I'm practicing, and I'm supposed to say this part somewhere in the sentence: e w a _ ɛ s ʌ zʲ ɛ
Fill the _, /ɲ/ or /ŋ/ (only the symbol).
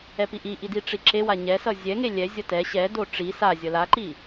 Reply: ɲ